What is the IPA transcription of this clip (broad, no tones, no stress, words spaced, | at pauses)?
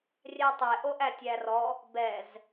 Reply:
rʲætˤe ʔoʔætʲærɔ | bɛz